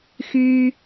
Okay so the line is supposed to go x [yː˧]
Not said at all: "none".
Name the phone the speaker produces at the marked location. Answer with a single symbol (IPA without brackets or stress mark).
yː˧